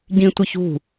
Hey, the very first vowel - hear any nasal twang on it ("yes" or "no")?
yes